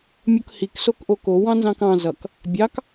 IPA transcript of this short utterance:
mʲ o k h i k s o k ʔ o k o w ɑ̃ n z ɑ̃ k ɑ̃ z ʌ k | bʲ ɑ k

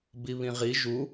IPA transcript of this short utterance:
b i β ĩ ʁ i ʒ u

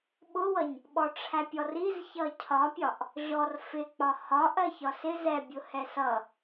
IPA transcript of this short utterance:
ɓ ʊ w ʌ ɲ | ɓ ɔ ʈ͡ʂʰ æ pʲ ɔ r i z ç ʌ cʰ ɒ pʲ ɒ ʔ | ʑ ɔ r f ɪ k͡p ɒ h ɒ ʔ ɜ ç ɒ s ɪ z ɛ bʲ ʊ h ɛ s ʌ

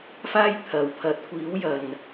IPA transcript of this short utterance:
f aː˥ j t̪ʰ ɐ˨ w pʰ ɐ˨˥ t̚ kʷ iː˨˥ w j ɐ˨˩ n

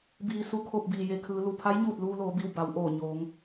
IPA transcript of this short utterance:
b iː˩˧ s u˩˧ kʰ o˧˩ p̚ b iː˩ j e˩ kʰ ɯː˩˧ l u˩ pʰ a˧˥ j ɲ uː˧˩ t̚ l uː˧ l oː˩˧ b i˧˩ w b a˩˧ w ʔ oː˧˩ ɲ oː˩˧ ŋ

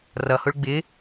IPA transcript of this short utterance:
r ʌ h ʊ ɭ ɡ͡b ɪ

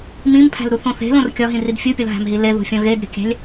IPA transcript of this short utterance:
m ĩ m pʰ æ̤ l ɾ u θ õ θ e̤ l õ r kʲ ɒ ɦ ĩ r i d fʲ u pʲ ɒ l ɦ æ̤ m ɦ i l e ð ṳ fʲ õ ɣ e d ɾʲ o̤ kʲ æ̤ lʲ

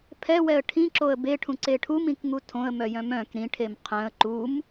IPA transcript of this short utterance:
pʰ ɛ w ɛ ə̯ ʈʰ ĩ ǁ o ə̯ b e ʈʰ ũ ǀ e ʈʰ u m ĩ k ŋ u tʰ õ ə̯ m œ j œ̃ m œ̃ k ɾ ĩ ʈʰ e m qʰ œ̃ ə̯ ǃ u m

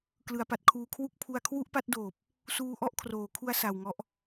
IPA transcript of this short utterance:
k l ɯ˩˦ a̯ p a˨˩ t̚ kʰ uː˧ kʰ w u˥˩ k̚ pʰ u˧ a̯ kʰ w u˥˩ ʔ p a˦˥ t̚ d oː˨˩ p̚ | s uː˧ ʔ ɔ˥˩ ʔ kʰ r oː˩˦ kʰ u˧ a̯ s a˨˩ w ŋ ɔ˦˥ ʔ

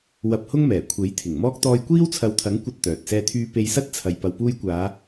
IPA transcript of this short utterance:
w ɐ˧ p̚ h ʊ˥ ŋ m ɛː˨˩ kʷʰ e˨˥ j t̪ʰ ɪ˨˩ ŋ m ɔː˥ k̚ t̪ ɔː˧ j kʷ iː˥ w t͡sʰ ɐ˨˧ w t̪ʰ ɐ˨˥ ŋ kʷ ɐ˥ t̚ t̪ œː˨ t̚ s ɛː˧ t̪ʰ yː˧ p e˧ j s ɐ˥ t̚ t͡sʰ ɐ˨ j p ɐ˨ w p uː˧ j kʷ aː˨˧

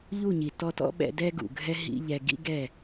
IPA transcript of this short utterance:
ʎ u˦˨ ɲ i˨ t ɔ˧ t ɔ̰˦ ɓ ɛ̰˧ d ɛ˦ ɡ ṵ˨ ɡʱ ɛ˦ ɦ ḭ˦ ʎ ɛ˧ ɡ ḭ˦ ɡ ɛ˦˨

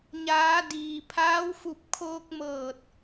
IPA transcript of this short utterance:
ɲ aː˩˧ d iː˩ pʰ aː˧˥ w f u˧ p̚ kʰ oː˧ k̚ m ɤː˧˩ t̚

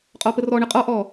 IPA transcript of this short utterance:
qʼ ɔ p ə r ɔ ɳ ə qʼ ɔ ʔ ɔ

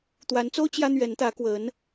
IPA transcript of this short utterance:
t̪ w a˧˥ n t͡s o˥ ʊ̯ t͡ɕ j ä˥ n̪ ɥ ɛ˧˥ n t̪ ä˧˥ k w ə˧˥ n

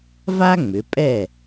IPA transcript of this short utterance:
v a˥ ŋ͡m ʏ˩˧ pʼ ɛ˥˨

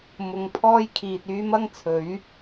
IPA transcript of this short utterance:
m ʊ˨˧ ŋ pʰ ɔː˥ j kʰ iː˨ t̚ yː˥ m ɐ˥ ŋ t͡sʰ ɵ˨˥ ɥ

